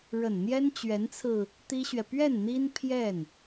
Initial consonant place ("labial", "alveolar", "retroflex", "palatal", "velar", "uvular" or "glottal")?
retroflex